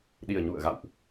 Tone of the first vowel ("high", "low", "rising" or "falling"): low